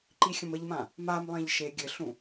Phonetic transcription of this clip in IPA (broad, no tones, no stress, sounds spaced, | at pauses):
ǃ i xʲ ə̃ m ə ʎ m ã | m a m lˠ ẽ ʎ ʃ e ɡʲ ɘ ɬ ũ